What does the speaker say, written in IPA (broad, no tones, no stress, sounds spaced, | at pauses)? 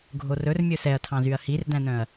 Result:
ɡʱ o r ɵ r mʲ ɵ s ɛ ɐ̯ tʰ ɑ̃ z y ɐ̯ h i r d æ̃ n œ̃ ɐ̯